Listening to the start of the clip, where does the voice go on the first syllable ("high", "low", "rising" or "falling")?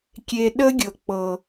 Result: low